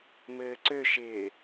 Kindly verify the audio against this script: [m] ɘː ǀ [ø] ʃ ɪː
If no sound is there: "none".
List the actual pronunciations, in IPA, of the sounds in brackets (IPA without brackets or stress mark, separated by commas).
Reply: m, ø